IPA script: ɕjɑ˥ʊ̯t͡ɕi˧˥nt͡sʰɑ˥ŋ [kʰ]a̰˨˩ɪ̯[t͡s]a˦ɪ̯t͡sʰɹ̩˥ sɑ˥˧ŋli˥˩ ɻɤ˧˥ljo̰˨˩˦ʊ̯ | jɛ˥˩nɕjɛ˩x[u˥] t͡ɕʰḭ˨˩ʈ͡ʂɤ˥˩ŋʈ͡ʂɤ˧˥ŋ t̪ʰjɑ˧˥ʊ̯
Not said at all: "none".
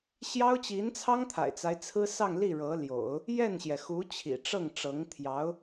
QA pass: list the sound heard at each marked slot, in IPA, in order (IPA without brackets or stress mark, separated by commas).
t̪ʰ, t͡s, u˧˥